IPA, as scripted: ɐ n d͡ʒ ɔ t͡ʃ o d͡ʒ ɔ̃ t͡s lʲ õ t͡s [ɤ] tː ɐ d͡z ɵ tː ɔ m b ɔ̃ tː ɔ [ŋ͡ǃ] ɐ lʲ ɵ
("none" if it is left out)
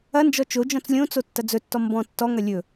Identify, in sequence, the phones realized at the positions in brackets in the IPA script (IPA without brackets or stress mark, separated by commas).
o, ŋ